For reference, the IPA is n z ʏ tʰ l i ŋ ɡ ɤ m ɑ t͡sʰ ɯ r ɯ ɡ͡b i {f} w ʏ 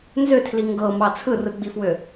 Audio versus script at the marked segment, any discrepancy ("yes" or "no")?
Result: no